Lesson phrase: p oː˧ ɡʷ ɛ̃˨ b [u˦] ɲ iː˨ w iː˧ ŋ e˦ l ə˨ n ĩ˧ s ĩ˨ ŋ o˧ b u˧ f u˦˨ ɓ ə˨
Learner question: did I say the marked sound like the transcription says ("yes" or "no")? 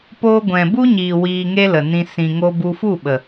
yes